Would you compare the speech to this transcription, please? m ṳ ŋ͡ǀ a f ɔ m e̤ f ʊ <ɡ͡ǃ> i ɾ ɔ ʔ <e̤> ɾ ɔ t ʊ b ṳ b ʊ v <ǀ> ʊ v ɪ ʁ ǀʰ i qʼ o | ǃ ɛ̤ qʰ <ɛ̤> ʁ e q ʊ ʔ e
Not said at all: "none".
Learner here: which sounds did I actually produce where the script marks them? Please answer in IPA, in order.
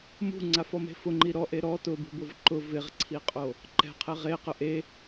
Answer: ŋ͡ǃ, e, ǃ, ɛ

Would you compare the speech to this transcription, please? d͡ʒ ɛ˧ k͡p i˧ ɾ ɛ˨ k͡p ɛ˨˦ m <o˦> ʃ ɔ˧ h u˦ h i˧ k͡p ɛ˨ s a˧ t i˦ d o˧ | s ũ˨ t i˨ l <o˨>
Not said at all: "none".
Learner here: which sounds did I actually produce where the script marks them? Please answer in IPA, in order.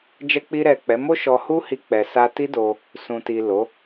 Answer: o˦, o˨˦

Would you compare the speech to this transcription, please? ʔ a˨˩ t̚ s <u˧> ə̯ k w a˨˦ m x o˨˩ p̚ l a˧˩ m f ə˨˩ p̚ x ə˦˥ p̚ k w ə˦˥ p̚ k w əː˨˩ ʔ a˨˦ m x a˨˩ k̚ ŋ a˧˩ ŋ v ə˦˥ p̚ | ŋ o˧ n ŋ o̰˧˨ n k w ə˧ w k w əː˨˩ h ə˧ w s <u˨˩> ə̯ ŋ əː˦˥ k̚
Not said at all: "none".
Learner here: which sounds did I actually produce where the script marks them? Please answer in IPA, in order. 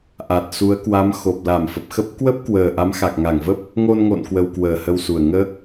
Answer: u˨˦, u˨˩

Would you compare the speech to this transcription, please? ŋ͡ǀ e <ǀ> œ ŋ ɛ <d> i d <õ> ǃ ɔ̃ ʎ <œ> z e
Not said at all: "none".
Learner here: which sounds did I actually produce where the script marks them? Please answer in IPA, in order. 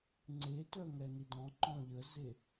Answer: t, n, ɔ̃, ə

